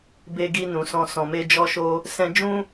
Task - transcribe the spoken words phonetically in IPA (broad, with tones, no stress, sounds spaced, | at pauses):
b e˧ ɡ i˧ n ũ˨ s ɔ̃˧ s ɔ̃˨ m e˧ d͡ʒ ɔ˧ ʃ o˧ | s ɛ̃˦ d͡ʒ ũ˦